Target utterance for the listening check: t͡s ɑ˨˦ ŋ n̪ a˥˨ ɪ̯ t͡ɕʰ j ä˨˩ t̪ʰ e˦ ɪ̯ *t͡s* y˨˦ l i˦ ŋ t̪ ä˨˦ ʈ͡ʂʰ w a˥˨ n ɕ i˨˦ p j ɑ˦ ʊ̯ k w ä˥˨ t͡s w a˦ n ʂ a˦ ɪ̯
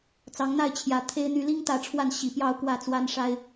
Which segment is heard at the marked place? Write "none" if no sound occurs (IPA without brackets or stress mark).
n̪